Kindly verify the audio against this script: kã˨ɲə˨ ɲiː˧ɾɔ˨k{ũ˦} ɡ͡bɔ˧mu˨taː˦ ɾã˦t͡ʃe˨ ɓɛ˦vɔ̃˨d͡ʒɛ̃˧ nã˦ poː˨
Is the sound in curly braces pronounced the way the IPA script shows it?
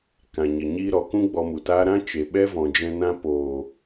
yes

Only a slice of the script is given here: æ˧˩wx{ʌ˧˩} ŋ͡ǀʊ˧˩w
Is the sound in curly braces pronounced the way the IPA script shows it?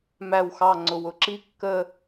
no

